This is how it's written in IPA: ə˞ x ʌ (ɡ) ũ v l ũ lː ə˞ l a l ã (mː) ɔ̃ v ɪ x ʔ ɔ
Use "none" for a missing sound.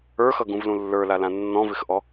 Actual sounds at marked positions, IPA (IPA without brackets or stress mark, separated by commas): ɡ, nː